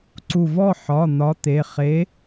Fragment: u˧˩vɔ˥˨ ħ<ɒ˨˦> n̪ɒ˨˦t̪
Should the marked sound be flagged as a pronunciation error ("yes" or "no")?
yes